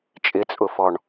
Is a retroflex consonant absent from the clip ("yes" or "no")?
no